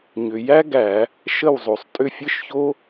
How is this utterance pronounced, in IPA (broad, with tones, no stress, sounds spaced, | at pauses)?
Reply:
ɲ ʏ˩ j æ˥ ɡ æ˧˩˧ | ʃ ə˥˩ w zˤ o˩ sˤ tʼ ʏ˥˩ fʲ ɘ˥ ʃ ç o˥